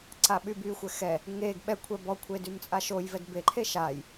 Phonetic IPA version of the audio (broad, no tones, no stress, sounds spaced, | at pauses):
ǀ a ɓ y b y xʷ ɛ x ɛ | ŋ e ɡ ɓ ɛ kʷʰ ɛ b ɔ kʷʰ e d y m t͡sʼ a ʃ o j v ɛ d b e ǃʰ e ʃ a j